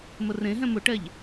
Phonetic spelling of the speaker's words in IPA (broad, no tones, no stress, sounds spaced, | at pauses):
m ə r ẽ ɦ ɛ̃ m ʊ ʈ ɛ ʎ